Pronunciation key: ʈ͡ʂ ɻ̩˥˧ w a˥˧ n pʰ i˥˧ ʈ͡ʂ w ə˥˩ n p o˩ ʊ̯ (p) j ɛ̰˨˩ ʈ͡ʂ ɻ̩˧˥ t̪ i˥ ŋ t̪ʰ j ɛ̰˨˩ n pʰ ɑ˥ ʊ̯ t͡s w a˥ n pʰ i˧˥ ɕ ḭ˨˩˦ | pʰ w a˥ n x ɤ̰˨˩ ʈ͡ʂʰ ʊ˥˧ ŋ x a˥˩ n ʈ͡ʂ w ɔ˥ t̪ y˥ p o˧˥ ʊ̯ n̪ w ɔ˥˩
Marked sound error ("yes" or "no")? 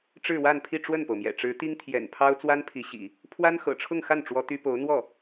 yes